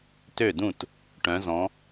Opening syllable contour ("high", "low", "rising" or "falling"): falling